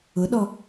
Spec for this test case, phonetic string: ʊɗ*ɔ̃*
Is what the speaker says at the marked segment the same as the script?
no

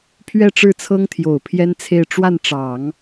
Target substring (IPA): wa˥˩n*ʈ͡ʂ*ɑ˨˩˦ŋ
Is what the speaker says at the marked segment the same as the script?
yes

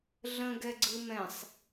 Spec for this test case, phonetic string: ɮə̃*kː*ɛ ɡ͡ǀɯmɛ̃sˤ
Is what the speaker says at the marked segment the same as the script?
no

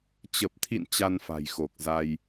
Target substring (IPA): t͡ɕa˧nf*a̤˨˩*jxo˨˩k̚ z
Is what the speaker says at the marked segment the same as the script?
yes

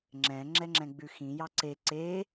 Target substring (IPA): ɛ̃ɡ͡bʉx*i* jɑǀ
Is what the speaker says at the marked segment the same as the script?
no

